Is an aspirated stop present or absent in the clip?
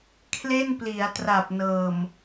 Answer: present